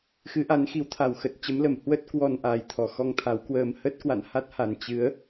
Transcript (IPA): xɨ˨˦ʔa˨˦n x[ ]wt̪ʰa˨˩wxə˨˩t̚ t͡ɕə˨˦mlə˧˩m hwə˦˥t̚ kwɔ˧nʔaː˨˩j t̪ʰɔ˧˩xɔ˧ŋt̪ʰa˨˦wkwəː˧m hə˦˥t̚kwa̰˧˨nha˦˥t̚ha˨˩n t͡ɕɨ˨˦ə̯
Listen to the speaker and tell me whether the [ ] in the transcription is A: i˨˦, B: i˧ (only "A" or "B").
A